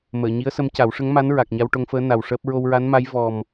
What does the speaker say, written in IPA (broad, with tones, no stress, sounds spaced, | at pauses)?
m əː˨˩˨ ɲ i˧˥ ə̯ s ə˧˥ m c a˨˩˦ w ʂ ə˧˥ ŋ m a˧˥ n ɹ a˨˩ k̚ ɲ a˧ w ʈ o˧ ŋ f əː˧˥ n a˨˩ w ʂ əː˦˥ p̚ ɹ o˧ w ɹ a˧˥ n m a˧˥ j v ɔ˨˩ m